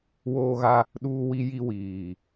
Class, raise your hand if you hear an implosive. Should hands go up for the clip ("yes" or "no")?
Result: yes